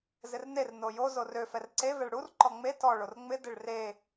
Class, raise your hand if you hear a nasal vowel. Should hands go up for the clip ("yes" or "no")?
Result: no